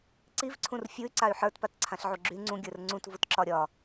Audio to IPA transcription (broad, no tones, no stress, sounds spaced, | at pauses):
ǀ i v ǀʰ ũ r fʲ u y̯ ǀ a y̯ ħ ə˞ t p a t ǀʰ ã ɬ ʕ u ɡ͡ǁ y ŋ͡ǀ ũ ɡʲ ə˞ r ŋ͡ǀ ũ t v u t ǁ ɒ ɾʲ ɒ